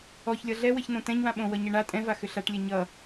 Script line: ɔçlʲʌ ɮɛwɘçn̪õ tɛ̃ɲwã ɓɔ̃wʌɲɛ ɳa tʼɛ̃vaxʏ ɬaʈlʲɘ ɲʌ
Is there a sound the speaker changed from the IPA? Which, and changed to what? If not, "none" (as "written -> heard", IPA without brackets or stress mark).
ɔ̃ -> õ